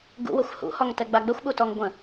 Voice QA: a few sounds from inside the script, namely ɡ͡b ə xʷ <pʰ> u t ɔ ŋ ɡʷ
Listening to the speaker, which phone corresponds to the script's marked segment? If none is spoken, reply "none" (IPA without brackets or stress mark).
ɓ